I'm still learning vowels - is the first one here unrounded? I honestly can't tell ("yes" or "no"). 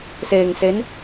yes